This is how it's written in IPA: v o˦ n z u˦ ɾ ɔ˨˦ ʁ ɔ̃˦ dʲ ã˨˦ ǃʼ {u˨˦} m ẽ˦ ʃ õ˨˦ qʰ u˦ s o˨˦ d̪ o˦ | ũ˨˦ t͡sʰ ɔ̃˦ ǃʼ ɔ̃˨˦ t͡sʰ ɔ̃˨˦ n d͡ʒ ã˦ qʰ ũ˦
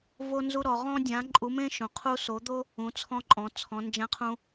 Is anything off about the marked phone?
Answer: no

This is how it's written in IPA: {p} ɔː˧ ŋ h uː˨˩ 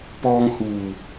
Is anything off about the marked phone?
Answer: no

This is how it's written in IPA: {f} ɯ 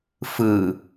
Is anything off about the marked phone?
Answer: no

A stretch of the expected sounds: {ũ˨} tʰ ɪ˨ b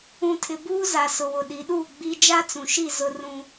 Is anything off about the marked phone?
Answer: no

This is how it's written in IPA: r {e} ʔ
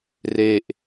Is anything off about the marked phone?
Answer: no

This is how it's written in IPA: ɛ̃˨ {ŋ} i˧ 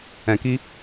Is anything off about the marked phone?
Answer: yes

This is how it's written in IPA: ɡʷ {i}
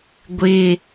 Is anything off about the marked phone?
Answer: yes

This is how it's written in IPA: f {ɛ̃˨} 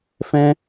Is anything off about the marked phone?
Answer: yes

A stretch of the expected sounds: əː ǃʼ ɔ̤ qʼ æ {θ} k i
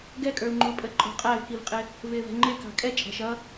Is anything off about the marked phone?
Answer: yes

